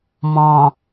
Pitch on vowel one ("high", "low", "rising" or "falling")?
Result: low